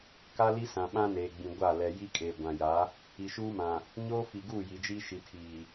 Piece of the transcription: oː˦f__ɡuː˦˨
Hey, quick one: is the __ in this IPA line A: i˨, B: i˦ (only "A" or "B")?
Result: A